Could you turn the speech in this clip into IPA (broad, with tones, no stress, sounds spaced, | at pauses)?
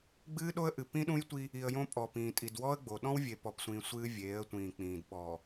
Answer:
ɡ͡b ɨː˦ ɗ o˦ ə̯ ʔ ɨ˨ p ĩ˦ ɗ ũ˦ j tʷ i˦ | i˨ ə̯ j õ˦ pʼ ɔ˨ p ĩː˨ tʼ i˨ d w ɔ˦ ə̯ ɡ͡b o˨ ɗ ɔ̃˦ w vʲ e˨ p ɔ˨ p sʷ ĩː˨ sʷ ɨː˦ vʲ eː˨˦ ə̯ tʷ ĩː˨ k͡p ĩː˨ d ɓ ɔ˨